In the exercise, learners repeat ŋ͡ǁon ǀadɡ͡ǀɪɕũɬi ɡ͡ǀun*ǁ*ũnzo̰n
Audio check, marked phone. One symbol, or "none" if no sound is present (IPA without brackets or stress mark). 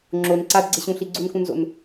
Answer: k